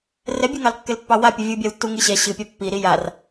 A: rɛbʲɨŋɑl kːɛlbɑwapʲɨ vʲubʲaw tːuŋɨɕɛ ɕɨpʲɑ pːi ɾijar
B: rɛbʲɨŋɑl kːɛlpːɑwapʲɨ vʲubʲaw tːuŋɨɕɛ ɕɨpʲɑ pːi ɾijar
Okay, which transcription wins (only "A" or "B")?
B